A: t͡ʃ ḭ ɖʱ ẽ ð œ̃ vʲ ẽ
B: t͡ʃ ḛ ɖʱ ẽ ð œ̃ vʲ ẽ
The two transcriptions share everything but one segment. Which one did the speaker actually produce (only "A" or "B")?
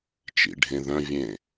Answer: A